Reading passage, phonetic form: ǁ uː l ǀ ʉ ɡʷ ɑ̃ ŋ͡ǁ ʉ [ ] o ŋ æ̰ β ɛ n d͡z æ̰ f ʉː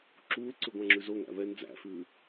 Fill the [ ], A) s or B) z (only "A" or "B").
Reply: B